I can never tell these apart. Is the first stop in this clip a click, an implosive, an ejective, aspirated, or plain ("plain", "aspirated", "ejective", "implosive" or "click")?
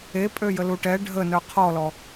ejective